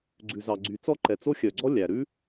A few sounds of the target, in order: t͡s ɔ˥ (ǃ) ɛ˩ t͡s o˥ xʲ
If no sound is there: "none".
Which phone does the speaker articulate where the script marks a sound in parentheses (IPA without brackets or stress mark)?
ǃ